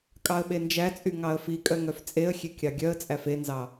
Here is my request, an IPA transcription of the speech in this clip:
kʼɑə̯ɓend͡ʒæt͡sʼy ŋɑə̯fikʼœ ŋœft͡sʼeə̯xʲe kʲɑɡʲœə̯t͡sʼæf enzɑ

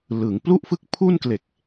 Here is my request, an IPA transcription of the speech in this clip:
lɯ˩˦ŋ plu˥˩ʔfɯ˥˩k̚pʰu˥˩nkle˨˩k̚

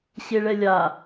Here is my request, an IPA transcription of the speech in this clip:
ɕeɭɛlʲa

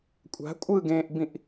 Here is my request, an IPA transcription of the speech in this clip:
kʷʼa̤ kʷʼɯɡẽːʔbĩʔ

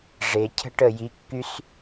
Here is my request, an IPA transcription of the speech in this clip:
ʐe˨cʰə̤˦ʈə˦˨ji˨˦ kːy˦s

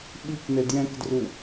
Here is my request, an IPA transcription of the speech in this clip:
ɓiknɘ djɛ̃kdru

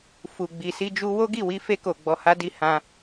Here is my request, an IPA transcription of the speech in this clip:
fu˨ ɡ͡bi˨si˧d͡ʒu˧ wo˦ɡi˦˨ wi˧fe˧ko˨ ɡ͡bɔ˧ ha˧di˧ hã˧

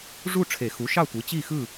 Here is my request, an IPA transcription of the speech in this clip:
ʐu˥˨ʈ͡ʂʰe˨˩˦xu˩˥ʃɑ˥˨ tʷɯ˩˥t͡ɕi˥˨xɯ˥˨

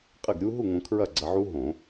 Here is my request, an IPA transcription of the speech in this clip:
qʼɘ˥˨ɡɾʲu˦˥ ɦu˥˨ŋõ˧ kʰɹɐ˥˨ɡ͡ǀɐ˧ʕu˦˥ ɦõ˧˩˧

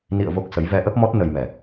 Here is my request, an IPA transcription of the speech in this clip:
nḭ˧˨ə̯ vo˦˥k̚sə˨˦j vɛ˧ʔə˦˥p̚mɔ˦˥t̚ nə˧jmɛ˨˩

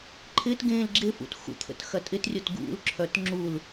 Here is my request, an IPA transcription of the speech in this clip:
ǃʰɪtɡẽːl ɡ͡ǁɪfṵt xṵt̪ʰə̰t xɐtʼɪtrʲot ɡṵlǁʰœt ŋ͡ǁul

